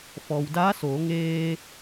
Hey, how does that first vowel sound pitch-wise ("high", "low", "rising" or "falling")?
low